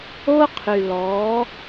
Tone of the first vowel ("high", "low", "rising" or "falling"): high